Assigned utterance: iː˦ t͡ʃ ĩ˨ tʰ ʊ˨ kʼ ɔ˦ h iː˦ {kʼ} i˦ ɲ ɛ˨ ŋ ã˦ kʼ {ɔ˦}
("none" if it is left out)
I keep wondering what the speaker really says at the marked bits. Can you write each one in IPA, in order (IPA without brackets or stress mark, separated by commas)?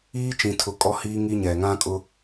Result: ŋ, ʊ˦